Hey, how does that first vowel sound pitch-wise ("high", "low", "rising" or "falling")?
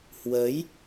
rising